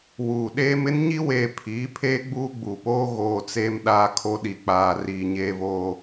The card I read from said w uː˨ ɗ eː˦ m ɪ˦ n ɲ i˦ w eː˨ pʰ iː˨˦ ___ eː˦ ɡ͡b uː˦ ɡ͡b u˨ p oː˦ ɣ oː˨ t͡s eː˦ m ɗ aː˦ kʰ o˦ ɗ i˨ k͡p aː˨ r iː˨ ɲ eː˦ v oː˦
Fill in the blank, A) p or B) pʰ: B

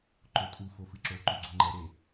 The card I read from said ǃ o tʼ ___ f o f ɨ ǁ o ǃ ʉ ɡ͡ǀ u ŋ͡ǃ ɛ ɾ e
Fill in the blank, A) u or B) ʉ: A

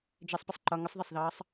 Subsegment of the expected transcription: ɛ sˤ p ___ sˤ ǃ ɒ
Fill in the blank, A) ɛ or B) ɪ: B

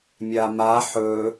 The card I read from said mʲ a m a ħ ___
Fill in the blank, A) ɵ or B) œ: A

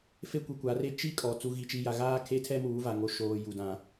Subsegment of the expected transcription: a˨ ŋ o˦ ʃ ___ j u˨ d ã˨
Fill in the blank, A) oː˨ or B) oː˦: A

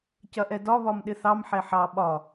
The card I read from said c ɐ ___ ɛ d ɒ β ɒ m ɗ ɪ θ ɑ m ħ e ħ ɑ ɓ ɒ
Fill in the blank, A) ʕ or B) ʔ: B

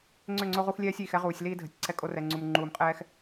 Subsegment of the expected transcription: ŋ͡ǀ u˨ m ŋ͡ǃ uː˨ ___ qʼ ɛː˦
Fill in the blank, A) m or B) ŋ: A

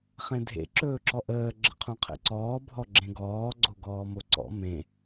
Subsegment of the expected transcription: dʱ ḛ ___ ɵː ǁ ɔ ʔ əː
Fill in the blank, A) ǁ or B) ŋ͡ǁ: A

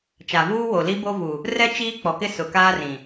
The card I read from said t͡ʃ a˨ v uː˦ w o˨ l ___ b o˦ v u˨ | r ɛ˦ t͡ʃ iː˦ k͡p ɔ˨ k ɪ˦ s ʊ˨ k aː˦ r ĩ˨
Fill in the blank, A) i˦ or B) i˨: A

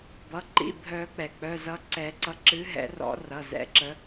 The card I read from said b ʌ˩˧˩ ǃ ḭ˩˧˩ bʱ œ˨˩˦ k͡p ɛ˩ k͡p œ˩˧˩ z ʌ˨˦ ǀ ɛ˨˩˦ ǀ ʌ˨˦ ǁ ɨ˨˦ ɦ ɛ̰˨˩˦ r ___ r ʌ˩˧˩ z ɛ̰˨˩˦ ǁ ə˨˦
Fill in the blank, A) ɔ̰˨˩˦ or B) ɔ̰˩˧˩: A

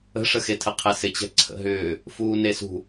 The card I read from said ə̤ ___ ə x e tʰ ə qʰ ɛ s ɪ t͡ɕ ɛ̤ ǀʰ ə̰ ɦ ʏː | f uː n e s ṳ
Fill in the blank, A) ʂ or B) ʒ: A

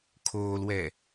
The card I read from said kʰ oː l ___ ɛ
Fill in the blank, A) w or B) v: A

